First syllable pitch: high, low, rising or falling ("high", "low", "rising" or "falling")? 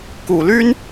low